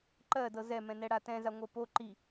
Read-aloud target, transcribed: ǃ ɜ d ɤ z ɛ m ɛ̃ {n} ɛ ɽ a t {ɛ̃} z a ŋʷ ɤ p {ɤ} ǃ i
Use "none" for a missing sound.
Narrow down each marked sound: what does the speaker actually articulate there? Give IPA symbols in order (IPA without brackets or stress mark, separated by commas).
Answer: n, ɛ̃, o